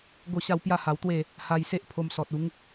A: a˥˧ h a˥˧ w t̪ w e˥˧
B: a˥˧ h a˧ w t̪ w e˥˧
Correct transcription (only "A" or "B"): B